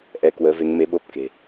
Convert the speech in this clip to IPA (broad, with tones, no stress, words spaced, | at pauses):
ʔɛ˧ kwəː˨˦ve˨˦ŋme˨˦ ɓo˦˥p̚ke̤˨˩